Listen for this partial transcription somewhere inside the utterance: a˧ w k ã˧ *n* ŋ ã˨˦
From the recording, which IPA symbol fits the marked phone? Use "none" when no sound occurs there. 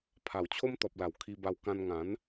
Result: n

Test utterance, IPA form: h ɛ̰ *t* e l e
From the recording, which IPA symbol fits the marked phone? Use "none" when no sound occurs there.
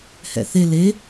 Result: θ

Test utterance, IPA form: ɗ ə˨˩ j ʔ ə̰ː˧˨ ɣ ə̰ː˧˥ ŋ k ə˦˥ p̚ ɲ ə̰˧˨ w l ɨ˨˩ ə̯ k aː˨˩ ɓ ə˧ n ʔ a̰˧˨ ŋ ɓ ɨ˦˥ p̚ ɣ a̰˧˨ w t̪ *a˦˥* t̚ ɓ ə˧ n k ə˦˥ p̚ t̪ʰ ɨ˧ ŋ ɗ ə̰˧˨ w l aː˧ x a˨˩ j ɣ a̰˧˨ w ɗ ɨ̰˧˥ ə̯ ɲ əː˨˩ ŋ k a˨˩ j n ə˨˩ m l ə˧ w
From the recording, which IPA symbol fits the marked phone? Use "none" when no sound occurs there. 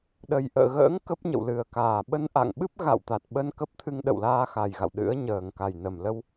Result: a˨˩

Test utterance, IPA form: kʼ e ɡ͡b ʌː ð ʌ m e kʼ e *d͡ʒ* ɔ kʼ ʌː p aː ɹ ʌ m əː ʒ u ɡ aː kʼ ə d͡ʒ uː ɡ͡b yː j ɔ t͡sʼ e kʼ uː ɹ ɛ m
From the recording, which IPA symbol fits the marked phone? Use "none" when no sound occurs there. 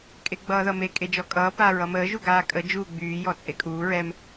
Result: d͡ʒ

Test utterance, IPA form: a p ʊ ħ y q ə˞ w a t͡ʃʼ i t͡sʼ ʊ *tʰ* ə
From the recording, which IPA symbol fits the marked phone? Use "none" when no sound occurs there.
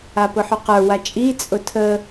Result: tʰ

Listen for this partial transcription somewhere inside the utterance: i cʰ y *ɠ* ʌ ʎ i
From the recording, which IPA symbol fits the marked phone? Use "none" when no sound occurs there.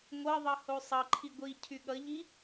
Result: ɠ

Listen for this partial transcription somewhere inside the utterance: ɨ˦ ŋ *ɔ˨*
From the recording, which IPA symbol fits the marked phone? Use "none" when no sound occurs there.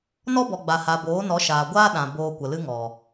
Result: ɔ˨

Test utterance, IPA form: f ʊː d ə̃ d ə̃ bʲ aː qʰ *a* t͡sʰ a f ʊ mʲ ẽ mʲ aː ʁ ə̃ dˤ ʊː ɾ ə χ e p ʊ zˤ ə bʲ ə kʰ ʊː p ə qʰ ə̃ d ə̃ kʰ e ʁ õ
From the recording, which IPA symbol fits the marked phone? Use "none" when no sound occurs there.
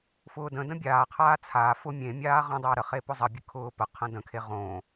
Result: aː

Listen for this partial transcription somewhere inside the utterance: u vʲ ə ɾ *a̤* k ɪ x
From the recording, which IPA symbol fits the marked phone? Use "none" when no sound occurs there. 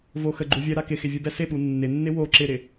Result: a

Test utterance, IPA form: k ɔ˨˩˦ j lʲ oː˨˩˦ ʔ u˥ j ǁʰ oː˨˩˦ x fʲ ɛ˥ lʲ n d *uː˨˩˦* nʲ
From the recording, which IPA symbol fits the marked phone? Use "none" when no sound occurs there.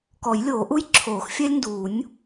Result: uː˨˩˦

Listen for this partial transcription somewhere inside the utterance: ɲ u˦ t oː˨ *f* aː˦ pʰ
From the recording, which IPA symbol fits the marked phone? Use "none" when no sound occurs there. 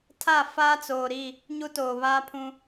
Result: β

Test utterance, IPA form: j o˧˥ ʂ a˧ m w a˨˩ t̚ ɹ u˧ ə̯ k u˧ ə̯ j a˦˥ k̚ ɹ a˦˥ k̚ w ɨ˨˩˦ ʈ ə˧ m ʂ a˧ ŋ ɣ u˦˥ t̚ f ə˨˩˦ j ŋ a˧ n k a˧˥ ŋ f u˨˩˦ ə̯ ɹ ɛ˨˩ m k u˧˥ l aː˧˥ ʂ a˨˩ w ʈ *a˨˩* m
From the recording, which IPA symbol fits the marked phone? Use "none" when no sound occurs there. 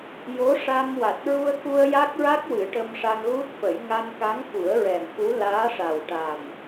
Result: a˨˩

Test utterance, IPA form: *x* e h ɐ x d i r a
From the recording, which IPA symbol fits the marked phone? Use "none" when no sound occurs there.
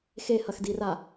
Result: x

